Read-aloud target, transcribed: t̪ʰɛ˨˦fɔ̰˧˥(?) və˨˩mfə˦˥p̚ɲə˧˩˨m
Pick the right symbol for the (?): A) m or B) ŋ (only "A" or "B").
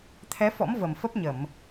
A